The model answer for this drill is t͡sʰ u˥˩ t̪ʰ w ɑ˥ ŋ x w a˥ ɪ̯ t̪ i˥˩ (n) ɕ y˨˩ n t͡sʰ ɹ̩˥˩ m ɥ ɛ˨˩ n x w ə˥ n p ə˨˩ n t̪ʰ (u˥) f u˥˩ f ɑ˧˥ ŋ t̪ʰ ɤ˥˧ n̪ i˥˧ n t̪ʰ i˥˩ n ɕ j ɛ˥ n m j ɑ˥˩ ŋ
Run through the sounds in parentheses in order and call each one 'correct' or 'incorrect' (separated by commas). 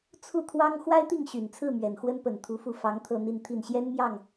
incorrect, incorrect